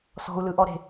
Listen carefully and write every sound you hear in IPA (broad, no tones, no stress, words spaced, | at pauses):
sɔ̤u̯lɯʔɔɾe̤